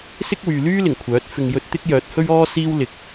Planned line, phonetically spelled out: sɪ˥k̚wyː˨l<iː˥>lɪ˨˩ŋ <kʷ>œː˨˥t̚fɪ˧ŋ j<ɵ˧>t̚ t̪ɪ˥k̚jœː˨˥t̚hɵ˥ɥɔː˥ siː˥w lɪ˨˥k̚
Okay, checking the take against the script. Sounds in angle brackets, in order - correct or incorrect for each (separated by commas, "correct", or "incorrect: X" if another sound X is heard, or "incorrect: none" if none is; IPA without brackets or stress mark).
incorrect: yː˥, incorrect: kʷʰ, correct